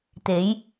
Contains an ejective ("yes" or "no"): no